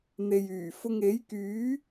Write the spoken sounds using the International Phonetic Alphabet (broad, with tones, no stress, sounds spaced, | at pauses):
n̪ e˨ j yː˨˩ f ʊ˧ ŋ e˨˥ j k yː˨˥